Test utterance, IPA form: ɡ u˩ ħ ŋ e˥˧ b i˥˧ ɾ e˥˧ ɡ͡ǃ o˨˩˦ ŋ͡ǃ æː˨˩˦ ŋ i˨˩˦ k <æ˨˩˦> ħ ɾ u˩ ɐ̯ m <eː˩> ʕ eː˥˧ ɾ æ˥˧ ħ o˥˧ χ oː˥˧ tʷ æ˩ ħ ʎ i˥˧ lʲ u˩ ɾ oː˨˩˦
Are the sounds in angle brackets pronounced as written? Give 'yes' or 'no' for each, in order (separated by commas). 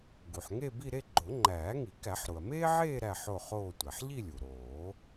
yes, no